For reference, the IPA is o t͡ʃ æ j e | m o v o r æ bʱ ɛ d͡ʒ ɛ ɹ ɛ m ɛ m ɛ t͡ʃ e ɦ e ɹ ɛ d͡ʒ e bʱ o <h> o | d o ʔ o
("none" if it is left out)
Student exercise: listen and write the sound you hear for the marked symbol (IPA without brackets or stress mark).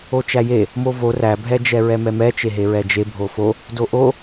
f